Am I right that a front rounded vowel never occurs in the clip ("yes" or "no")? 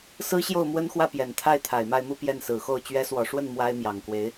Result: yes